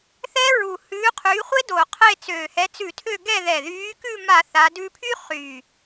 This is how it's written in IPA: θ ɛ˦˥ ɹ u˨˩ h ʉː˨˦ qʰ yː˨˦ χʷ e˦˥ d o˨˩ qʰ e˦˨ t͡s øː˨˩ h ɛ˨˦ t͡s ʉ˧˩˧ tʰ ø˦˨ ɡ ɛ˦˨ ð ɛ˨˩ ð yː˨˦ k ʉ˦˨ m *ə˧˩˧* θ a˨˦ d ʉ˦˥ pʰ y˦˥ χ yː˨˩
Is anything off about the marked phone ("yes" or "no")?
yes